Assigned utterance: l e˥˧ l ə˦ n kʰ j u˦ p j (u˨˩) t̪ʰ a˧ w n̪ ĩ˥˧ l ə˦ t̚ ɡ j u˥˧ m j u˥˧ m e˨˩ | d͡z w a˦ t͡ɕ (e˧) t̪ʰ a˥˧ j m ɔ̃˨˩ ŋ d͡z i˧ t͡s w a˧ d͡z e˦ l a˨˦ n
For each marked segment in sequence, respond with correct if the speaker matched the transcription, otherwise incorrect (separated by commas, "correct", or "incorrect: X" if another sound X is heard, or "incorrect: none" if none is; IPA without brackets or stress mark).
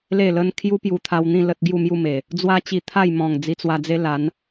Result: incorrect: u˧, incorrect: i˧